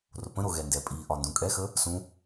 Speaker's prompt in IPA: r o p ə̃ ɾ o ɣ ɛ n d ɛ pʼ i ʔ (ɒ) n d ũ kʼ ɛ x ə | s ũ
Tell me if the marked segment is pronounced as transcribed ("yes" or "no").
yes